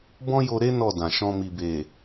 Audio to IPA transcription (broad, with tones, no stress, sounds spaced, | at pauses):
b ɔ̃˦ j o˧ ɾ e˦ n ɔ˦˨ d ã˨ ʃ ɔ̃˧ m i˨ b e˨